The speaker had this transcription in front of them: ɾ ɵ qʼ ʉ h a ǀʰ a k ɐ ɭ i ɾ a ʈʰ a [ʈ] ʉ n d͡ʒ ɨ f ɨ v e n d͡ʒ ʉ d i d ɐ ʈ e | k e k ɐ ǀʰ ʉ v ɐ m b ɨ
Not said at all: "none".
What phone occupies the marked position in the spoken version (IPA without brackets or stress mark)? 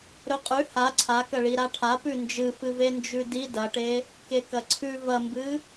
p